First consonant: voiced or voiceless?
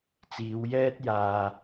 voiceless